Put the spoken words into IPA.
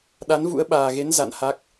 ɗ a˨˦ n v ṵ˧˥ ə̯ ɓ aː˨˩ ɣ e˨˦ n z a̰˧˨ n h a˦˥ k̚

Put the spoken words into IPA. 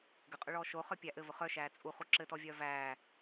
ɡ ɘ qʼ ʊ ɭ ɔː ʃ o χ œ pʲ æ ʔ ɘ v ʊ χ œ ʃ æː t͡sʼ u χ u ǁ ɘ t ɔ vʲ œː v æː

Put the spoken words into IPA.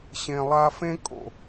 ɕ ẽ˨ lˠ a˧ f ẽ˦ kʼ o̰˨

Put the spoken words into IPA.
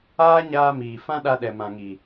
aː˦ ɲ aː˧ m iː˨ f ã˦ ɗ a˧ ɗ ɛ˨ m ã˨ ŋ i˨

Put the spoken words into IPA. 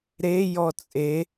ɾ e j ɔ t͡sʼ e

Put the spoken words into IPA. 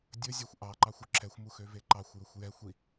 dʲ ɵ zʲ ɛ xʷ ʔ ɑ ǃ ɑ xʷ ø ǁʰ ɛ xʷ m u x ø v e ǃ ɑ xʷ j ɵ xʷ j ɛ xʷ i

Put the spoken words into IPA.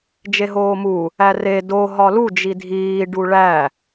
d͡ʒ e ɦ oː m u | æ r e d o ɦ ɒ l u d͡ʒ i dʱ iː ɖ u ɭ æ

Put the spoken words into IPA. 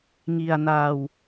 ŋ i˧ a̯ n aː˧ w

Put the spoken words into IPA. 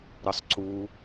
ɾ ə sˤ ǀ u

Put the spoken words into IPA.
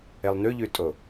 e lˠ n ʉ ʎ ʉ tʼ o

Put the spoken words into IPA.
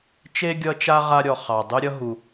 t͡ʃ e˥ ɡʲ ʌ˦ t͡ʃ a˥ ʁ a˦ ɾʲ ɔ˨ χ ɑ˩ dˤ ʉ˦ ɾʲ ʌ˥ ɦ u˨

